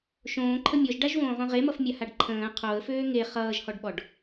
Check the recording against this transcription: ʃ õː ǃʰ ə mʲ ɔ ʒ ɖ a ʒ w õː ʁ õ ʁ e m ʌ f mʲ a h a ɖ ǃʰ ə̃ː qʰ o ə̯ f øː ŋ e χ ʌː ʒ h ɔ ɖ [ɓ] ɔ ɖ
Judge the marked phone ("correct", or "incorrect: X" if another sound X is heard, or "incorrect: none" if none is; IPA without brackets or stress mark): correct